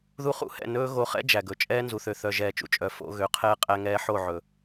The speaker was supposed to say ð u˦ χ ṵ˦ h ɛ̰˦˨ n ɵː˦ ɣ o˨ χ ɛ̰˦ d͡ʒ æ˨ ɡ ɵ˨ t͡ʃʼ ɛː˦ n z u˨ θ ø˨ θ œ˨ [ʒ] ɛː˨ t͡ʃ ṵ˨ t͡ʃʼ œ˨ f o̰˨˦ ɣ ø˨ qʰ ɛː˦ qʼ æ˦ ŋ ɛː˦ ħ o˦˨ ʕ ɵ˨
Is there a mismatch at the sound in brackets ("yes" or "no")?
no